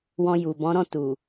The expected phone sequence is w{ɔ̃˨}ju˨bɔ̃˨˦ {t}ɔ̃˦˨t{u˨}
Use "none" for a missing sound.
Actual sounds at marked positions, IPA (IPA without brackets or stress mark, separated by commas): ɔ̃˧, ɾ, u˨